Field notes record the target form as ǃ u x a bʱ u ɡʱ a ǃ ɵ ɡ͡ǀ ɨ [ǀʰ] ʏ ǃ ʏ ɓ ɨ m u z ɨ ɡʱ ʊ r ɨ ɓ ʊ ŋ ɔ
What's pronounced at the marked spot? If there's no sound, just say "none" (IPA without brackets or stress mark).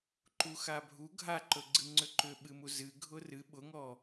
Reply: ŋ͡ǀ